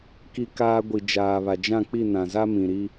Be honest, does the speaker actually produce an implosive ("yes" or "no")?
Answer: no